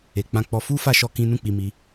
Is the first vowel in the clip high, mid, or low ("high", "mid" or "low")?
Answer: mid